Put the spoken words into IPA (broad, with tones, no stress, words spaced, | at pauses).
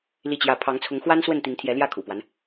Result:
li˥˧t͡ɕjä˥˩ pʰɑ˧˥ŋt͡sʰʊ˧˥ŋ xwa˥n swə˥˩nt̪i˧˥ŋt̪ʰjɛ˧˥ ljä˥˩kʰṵ˨˩pwa˦n